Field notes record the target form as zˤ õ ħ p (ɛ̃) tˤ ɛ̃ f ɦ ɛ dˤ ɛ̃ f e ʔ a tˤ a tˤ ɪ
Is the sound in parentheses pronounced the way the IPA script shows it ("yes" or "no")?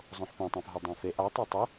yes